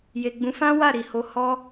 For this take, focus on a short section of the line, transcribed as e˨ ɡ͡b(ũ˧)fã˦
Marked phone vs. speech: incorrect: ũ˨˦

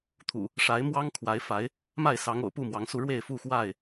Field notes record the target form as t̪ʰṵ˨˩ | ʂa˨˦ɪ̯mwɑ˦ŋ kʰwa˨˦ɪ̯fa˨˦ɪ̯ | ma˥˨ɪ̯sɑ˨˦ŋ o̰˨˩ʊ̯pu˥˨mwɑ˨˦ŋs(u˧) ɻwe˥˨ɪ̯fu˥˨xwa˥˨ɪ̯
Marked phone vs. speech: correct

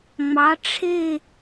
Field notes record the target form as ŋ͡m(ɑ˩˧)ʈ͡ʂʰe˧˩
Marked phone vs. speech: correct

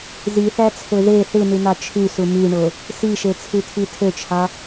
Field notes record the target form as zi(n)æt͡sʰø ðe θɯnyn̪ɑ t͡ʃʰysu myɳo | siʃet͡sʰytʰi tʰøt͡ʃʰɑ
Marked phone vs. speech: incorrect: θ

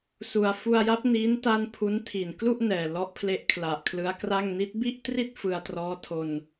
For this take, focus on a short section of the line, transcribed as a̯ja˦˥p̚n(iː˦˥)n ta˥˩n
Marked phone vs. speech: correct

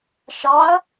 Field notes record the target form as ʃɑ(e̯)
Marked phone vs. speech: incorrect: ɐ̯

